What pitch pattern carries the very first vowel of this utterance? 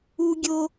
high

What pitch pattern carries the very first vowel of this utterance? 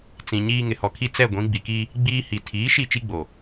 low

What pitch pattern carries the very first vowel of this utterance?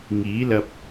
rising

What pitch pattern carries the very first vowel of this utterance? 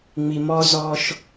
low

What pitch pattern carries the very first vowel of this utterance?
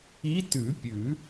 rising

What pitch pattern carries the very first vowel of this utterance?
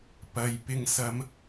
low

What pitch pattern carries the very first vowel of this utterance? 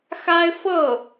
high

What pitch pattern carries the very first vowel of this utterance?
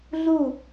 falling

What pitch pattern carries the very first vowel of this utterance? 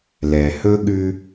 low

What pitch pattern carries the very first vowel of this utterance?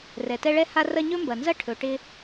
low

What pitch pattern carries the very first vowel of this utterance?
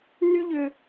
high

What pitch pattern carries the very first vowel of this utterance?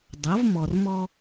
rising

